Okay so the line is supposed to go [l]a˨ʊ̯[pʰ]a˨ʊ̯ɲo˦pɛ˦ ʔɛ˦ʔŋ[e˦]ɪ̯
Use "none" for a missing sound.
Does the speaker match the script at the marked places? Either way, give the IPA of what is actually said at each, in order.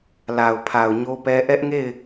l, pʰ, e˦˨

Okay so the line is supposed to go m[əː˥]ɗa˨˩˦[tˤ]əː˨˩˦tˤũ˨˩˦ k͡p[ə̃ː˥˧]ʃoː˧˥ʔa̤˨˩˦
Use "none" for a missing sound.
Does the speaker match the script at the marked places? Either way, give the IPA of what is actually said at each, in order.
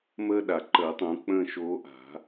əː˥, ǃ, ə̃ː˥˧

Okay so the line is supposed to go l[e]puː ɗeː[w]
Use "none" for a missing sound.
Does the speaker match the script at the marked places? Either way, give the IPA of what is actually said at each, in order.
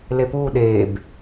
e, b

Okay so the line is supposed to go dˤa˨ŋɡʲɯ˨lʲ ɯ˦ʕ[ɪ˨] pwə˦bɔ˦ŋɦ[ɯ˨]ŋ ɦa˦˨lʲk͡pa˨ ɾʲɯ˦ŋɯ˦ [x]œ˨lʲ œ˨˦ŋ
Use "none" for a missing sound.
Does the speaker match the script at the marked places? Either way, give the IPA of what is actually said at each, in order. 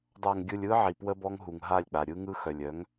i˨, u˨, x

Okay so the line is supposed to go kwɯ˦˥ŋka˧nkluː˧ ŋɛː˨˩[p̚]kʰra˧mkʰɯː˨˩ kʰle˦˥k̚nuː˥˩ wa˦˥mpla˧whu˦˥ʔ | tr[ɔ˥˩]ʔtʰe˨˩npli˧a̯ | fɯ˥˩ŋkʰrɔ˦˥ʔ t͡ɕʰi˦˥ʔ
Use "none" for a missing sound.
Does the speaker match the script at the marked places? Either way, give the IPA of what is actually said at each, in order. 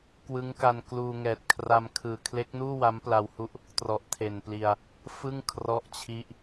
t̚, ɔ˨˩

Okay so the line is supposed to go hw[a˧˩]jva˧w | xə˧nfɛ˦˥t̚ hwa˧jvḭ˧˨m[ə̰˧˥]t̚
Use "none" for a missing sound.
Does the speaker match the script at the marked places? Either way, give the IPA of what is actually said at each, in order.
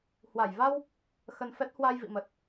a˧˩, ə˨˩

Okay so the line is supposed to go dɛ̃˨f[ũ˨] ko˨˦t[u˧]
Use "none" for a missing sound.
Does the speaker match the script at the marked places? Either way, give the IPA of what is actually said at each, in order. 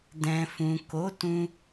ũ˨, ũ˧

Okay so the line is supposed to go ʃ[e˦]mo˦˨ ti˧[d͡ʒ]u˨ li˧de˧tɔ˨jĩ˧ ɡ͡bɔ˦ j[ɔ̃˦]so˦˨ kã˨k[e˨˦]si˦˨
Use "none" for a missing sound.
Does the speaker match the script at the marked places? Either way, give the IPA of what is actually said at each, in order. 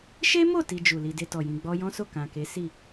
e˦, d͡ʒ, ɔ̃˦, e˨˦

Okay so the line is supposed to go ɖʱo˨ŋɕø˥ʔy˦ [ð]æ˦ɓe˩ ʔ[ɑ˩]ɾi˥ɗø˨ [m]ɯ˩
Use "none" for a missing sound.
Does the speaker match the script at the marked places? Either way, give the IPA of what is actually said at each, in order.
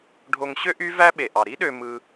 v, ɑ˩, m

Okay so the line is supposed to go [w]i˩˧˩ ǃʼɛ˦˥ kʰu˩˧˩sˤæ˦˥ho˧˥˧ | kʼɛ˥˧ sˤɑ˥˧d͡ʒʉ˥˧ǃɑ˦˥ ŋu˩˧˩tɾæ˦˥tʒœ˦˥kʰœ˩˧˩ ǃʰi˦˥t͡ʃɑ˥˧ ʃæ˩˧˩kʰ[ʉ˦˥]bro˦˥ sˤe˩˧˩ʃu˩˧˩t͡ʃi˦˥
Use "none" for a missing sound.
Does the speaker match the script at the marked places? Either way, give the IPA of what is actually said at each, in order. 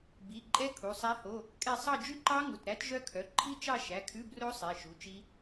b, ʉ˧˥˧

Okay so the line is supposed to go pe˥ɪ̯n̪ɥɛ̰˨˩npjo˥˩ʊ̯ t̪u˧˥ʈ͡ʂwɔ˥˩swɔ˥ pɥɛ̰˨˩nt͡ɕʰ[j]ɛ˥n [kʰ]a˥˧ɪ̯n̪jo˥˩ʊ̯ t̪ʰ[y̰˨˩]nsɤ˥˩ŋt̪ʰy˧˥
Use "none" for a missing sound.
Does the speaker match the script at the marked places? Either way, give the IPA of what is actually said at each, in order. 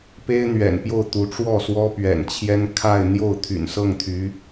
j, kʰ, y̰˨˩

